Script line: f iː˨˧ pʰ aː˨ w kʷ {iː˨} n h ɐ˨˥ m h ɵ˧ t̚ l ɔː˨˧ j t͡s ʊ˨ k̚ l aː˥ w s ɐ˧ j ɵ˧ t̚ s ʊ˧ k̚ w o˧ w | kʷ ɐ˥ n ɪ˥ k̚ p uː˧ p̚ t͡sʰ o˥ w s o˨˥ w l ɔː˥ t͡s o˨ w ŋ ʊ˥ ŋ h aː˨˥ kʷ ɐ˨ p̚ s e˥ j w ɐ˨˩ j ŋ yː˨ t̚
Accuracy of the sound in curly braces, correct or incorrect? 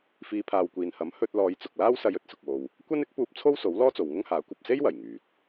correct